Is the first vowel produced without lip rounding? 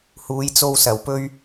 no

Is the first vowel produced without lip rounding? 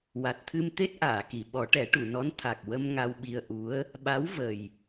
yes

